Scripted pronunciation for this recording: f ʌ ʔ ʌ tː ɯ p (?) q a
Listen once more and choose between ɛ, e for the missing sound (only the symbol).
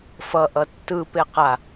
e